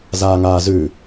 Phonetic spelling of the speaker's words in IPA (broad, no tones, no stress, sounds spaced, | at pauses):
z aː ŋ aː z ʉ